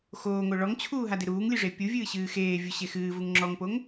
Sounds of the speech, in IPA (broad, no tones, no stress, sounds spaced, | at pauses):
x oː ŋ o ɭ ɔ ŋ t͡ɕʰ uː ɦ a d e ɾ uː ŋ lʲ ɨ ʐ e pʲ u vʲ ɨː ɕ ɨː x eː vʲ u ɕ e x ɨː v u ŋ ŋ͡ǁ ɔ ŋ p o ŋ